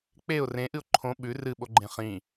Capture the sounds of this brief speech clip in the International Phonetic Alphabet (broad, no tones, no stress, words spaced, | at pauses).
k͡peʊ̯ rẽʔɨʊ̯ ǃʰõ ɓʉ rɨɓoɡ͡ǃẽ χĩ